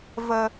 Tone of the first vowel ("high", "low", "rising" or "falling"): low